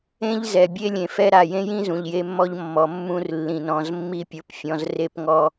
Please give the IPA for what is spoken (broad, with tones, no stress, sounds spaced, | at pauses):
ẽ˦ ʎ z ɛ˨ bʲ e˦ lʲ ẽ˨ f ɛ˦ ɾ a˨ j ẽ˦ j ĩ˦ z ũ˨ ʎ j e˦ mː ɔ˦ ʎ mː ɔ˨ mː ũ˦ r lː ĩ˨ n ɔ̃˨ z mː i˦ pʲ o˨ p fʲ ɔ̃˨ z r e˦ p ŋ ɔ˦